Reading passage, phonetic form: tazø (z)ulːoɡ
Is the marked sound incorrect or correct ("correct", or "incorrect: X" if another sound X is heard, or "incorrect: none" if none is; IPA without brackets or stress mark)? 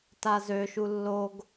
incorrect: ʃ